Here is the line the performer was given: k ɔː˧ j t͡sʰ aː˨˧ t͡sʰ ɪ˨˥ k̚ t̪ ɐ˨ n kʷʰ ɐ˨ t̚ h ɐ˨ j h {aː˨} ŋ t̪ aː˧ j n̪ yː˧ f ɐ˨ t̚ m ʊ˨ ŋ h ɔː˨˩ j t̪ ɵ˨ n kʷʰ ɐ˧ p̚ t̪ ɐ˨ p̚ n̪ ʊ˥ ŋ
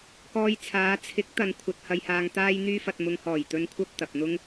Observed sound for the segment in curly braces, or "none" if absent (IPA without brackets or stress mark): aː˨